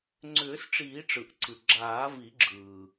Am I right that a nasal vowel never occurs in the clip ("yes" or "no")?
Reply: yes